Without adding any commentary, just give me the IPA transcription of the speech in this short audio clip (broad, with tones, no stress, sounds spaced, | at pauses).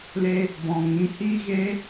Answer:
l e˧ | b ɔ̃˨ ŋ ĩ˨˦ h iː˦ ɣ e˦